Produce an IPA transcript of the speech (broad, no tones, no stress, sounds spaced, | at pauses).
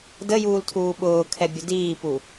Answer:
d ə j uː l tʰ uː ɓ ʊː kʰ ɛ bʲ u d iː p u